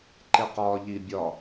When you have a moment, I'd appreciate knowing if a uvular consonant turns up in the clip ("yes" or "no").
yes